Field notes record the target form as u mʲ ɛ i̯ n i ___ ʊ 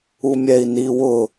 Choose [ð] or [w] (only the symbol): w